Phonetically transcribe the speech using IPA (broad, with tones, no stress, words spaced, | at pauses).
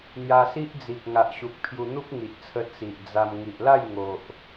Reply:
n̪ja˧si˦ʔd͡zi˨k̚ ŋa˨ʔɕu˨k̚ pʰju˧n̪u˦p̚ ŋi˨ʔt͡sʰə˧ t͡si˨ʔd͡za˧m ŋi˨ʔla˥˧jŋo˨ʔ